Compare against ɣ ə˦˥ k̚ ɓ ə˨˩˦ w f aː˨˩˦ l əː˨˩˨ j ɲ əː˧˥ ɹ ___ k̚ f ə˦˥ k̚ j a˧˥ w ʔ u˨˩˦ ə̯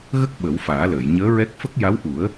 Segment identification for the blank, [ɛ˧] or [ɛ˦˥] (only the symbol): ɛ˦˥